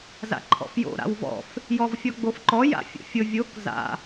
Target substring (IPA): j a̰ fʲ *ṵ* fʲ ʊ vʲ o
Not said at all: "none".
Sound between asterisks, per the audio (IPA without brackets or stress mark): o̰